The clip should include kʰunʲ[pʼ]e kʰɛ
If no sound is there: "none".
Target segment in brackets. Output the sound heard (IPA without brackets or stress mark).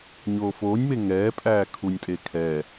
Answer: tʼ